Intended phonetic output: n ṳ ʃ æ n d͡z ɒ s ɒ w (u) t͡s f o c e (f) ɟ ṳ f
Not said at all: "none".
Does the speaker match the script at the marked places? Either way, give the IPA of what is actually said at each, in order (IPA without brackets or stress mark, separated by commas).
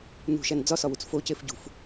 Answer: u, f